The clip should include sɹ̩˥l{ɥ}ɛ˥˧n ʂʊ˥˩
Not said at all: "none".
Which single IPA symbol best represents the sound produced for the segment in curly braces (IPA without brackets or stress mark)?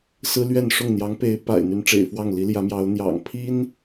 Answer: ɥ